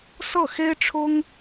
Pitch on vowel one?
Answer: falling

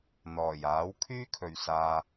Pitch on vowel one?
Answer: low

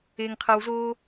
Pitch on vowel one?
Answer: low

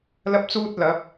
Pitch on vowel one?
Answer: high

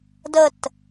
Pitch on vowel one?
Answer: falling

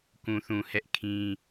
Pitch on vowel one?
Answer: low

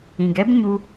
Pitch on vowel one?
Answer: low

